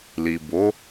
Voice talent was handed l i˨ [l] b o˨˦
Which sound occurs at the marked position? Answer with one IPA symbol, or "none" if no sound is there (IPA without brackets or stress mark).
none